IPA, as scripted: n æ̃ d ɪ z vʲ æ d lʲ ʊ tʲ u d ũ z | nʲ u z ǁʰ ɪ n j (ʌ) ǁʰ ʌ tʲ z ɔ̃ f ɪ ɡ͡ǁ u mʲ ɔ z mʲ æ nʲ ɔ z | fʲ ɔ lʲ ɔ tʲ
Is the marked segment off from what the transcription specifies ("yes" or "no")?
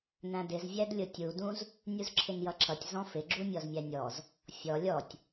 no